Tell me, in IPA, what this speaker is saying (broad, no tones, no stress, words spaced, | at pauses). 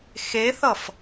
xeθʌf